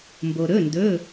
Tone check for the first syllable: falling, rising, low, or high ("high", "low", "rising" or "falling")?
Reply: low